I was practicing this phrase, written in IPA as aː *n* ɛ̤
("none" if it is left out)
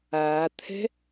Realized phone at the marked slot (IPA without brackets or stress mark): t̪ʰ